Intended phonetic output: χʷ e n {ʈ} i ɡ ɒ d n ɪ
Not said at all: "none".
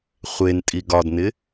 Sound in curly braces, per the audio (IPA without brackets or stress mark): tʼ